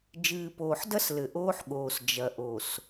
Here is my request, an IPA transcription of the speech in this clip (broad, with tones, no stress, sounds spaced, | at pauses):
d͡ʒ ɨː˨ p oː˨ ħ d ɐ˦ s l ɘ˨ ʔ oː˦ ħ ɠ oː˨ s d͡ʒ ɐ˨ ʔ o˨ s